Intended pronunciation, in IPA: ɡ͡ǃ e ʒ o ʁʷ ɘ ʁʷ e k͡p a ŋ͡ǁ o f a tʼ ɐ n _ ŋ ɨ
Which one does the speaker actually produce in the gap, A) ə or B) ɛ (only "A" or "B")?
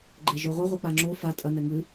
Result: B